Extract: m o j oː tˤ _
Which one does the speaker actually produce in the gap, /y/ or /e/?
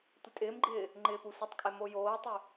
y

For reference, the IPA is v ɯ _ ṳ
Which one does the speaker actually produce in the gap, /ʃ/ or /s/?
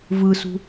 s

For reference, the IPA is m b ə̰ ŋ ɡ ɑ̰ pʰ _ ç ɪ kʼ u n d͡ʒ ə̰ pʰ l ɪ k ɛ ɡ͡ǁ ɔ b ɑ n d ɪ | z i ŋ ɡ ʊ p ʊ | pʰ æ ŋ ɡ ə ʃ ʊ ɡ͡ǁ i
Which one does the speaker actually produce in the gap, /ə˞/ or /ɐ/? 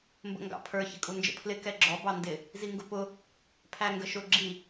ə˞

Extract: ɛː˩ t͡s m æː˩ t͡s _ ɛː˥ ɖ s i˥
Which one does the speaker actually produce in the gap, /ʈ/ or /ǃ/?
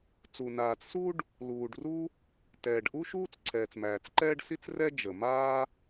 ǃ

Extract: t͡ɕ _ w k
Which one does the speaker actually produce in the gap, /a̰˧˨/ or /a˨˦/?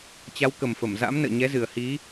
a˨˦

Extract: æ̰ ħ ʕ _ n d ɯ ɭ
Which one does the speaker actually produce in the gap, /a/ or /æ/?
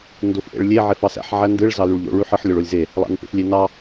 æ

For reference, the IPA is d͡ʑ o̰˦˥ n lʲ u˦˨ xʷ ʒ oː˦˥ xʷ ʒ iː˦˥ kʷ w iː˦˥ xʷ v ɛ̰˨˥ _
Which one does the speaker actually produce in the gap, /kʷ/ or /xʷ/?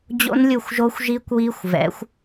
xʷ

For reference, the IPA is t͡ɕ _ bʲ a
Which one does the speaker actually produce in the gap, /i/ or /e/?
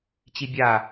i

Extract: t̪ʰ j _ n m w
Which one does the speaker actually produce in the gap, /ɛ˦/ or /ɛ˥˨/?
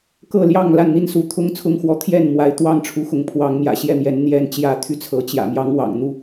ɛ˥˨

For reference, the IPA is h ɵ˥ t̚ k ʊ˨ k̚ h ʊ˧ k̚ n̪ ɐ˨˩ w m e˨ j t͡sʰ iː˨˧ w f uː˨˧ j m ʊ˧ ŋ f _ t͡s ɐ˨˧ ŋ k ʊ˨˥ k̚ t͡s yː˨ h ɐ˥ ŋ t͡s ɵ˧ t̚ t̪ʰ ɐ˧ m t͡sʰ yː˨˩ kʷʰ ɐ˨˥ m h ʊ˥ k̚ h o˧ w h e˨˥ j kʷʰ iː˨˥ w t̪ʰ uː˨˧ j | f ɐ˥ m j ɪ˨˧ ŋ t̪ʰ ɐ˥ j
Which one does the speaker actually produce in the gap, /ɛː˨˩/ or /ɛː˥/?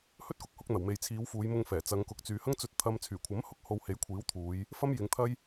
ɛː˨˩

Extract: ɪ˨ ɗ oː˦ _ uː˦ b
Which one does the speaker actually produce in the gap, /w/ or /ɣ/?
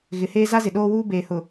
w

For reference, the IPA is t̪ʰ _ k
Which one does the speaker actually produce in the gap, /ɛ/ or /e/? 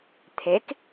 e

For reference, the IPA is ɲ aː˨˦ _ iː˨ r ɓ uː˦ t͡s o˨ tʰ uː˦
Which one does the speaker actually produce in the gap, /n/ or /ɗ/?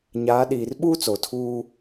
ɗ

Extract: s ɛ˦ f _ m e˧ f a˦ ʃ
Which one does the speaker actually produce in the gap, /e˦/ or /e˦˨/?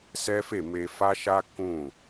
e˦˨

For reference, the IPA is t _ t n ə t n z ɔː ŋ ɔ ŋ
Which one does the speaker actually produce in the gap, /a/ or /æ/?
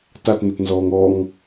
a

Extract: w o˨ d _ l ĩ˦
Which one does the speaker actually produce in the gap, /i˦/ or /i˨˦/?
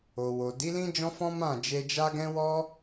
i˨˦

